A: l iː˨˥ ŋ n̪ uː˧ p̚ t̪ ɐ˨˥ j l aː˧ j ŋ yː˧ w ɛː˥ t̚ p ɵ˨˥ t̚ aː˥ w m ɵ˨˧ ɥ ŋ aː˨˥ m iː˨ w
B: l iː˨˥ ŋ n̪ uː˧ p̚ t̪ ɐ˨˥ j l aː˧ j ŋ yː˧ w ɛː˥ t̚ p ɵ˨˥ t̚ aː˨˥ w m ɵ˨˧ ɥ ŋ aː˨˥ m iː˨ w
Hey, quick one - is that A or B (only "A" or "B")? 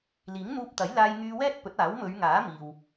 B